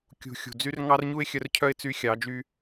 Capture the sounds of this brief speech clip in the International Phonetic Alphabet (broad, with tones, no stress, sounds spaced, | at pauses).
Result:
kʲ ṳ˨ xʲ ṳ˨ d͡z y˧ r ŋ ɑ˦ r ɲ u˦ ɪ̯ xʲ œ˧ r cʰ œ˦ ɪ̯ t͡s y˧ xʲ ɑ˨˦ d͡ʒ y˧